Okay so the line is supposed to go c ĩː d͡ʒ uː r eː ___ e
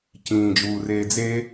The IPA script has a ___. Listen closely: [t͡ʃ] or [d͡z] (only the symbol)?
d͡z